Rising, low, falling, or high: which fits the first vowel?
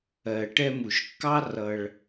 low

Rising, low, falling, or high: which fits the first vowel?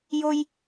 high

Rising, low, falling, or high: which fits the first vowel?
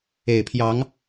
low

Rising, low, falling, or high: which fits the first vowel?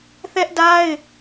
high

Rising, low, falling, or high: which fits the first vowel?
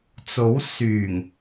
rising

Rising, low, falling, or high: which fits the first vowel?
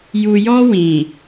low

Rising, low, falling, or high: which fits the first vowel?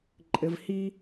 low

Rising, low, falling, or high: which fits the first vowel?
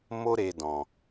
high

